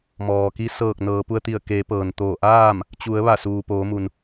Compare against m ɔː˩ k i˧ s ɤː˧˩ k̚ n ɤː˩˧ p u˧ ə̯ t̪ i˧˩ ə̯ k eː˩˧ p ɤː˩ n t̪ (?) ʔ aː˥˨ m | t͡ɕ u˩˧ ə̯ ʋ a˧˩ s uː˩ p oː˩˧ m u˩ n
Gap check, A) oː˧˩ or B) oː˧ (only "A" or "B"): A